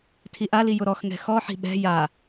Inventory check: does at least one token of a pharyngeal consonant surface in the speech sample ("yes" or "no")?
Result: yes